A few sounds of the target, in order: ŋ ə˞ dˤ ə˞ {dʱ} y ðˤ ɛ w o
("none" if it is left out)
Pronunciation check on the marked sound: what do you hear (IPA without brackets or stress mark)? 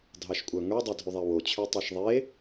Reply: dʱ